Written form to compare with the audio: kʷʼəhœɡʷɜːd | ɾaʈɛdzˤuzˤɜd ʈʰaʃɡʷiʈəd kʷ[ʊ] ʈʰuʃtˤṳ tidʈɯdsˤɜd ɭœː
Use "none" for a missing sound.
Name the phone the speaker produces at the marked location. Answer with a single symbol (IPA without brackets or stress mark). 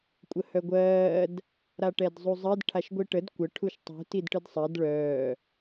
ə